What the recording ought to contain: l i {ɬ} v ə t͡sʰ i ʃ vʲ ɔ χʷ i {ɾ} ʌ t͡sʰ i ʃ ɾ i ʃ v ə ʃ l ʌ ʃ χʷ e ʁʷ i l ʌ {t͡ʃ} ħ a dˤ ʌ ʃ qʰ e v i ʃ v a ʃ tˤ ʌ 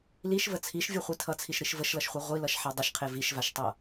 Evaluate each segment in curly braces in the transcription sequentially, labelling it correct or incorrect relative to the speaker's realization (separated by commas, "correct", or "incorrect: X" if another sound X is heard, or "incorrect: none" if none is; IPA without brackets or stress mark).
incorrect: ʃ, incorrect: tʰ, incorrect: ʃ